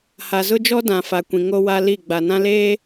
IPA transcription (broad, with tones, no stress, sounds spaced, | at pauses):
h a˨ z ʊ˦ d͡ʒ ɔ˦ d ã˨ f a˨ kʷ ĩ˨ ŋ o˦ w a˦ l i˦˨ ɡ͡b a˨ n ã˦ l eː˦